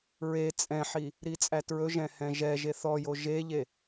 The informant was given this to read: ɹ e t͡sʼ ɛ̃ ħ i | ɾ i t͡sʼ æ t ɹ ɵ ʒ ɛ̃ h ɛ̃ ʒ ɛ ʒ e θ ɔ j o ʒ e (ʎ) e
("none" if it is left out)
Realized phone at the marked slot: ʎ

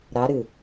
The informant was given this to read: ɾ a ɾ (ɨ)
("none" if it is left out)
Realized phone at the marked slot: ɨ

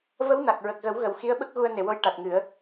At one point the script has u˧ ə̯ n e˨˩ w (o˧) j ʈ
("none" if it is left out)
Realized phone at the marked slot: o˧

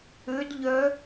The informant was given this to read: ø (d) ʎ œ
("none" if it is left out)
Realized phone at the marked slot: d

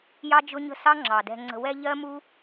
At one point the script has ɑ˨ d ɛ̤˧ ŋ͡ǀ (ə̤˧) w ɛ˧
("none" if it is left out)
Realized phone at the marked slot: ə̤˧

